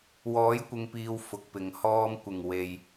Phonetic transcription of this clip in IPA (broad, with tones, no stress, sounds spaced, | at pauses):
w ɔː˨˥ j kʷ ɪ˨ ŋ p iː˨ w f ʊ˨˥ k̚ p ɪ˨ ŋ h ɔː˧ m kʷ ɪ˨˩ ŋ w e˨ j